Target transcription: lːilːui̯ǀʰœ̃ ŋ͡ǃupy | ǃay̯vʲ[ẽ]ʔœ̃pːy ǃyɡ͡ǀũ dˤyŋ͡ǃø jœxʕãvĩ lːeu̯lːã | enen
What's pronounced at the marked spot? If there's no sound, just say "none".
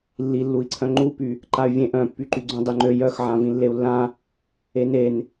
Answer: ẽ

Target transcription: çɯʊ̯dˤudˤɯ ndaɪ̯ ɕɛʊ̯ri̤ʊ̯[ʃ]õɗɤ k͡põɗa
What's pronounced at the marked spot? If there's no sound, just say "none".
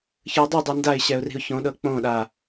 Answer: ç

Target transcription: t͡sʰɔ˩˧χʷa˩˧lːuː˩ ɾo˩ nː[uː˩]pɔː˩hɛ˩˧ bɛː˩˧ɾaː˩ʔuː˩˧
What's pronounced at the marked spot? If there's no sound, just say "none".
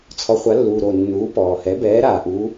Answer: uː˩˧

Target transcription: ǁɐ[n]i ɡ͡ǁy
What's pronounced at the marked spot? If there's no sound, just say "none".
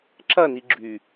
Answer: n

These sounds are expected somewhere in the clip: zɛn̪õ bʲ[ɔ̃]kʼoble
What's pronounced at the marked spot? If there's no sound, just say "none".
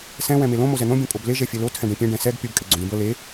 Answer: õ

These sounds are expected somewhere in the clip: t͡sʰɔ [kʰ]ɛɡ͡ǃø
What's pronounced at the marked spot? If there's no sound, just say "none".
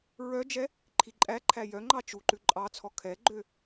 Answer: kʰ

